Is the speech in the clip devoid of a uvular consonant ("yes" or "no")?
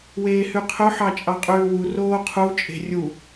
no